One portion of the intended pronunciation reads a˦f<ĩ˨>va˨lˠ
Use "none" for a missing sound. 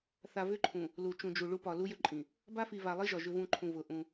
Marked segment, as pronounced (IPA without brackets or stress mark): i˨